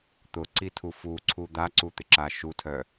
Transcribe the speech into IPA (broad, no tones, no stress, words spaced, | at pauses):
t̪ʊǀitʰu fuǀʰu d̪aǀut̪ɪǁa ʃutʰœ